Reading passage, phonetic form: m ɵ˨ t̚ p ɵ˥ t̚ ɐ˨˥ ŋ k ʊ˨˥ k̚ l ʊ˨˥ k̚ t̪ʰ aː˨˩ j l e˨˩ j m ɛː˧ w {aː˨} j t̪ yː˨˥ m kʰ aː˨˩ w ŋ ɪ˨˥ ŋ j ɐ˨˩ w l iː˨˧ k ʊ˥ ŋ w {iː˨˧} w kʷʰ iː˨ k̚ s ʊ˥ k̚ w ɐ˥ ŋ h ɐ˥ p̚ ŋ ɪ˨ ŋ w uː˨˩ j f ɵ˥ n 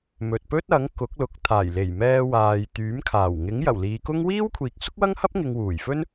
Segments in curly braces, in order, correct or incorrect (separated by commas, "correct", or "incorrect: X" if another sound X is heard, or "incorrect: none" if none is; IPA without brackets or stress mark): correct, incorrect: iː˥